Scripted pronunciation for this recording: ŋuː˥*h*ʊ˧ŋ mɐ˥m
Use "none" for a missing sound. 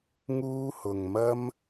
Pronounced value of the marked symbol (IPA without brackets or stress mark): h